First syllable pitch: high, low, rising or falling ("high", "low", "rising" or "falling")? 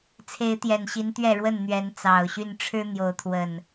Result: rising